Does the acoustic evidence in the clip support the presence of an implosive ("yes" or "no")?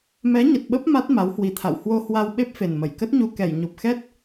yes